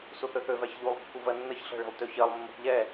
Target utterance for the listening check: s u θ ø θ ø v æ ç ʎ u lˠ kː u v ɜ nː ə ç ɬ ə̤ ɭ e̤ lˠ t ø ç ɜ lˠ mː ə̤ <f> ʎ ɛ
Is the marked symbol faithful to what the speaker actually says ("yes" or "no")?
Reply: no